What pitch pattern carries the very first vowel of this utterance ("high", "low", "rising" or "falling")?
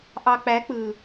low